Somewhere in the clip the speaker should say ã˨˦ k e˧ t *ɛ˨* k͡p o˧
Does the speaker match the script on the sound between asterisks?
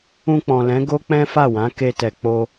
yes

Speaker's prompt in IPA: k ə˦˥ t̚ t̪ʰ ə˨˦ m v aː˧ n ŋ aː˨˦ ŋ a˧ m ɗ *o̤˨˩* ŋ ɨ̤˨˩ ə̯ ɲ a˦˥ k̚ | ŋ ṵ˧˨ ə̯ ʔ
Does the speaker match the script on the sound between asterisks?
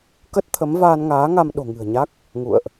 yes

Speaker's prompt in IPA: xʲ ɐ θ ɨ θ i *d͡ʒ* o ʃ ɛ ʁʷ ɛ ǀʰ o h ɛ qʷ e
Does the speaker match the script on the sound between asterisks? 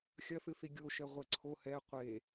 no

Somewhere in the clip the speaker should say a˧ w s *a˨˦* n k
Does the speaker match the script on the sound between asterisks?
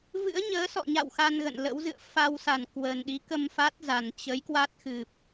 no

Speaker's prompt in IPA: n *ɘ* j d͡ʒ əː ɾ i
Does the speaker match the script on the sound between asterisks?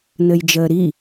yes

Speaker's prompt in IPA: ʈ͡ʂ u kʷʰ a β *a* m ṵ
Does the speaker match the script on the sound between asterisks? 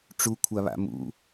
no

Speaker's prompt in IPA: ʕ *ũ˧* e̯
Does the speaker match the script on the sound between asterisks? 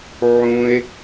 yes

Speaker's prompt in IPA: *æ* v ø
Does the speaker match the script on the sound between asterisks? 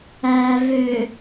yes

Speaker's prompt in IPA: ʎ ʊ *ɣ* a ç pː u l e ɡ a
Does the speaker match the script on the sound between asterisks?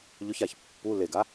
no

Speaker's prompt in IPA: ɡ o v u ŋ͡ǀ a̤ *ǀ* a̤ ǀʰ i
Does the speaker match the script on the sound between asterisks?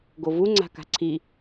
no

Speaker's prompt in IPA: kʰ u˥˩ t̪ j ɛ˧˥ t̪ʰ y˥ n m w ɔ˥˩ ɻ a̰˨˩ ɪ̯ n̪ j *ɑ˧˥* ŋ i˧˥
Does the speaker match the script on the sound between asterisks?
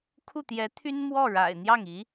no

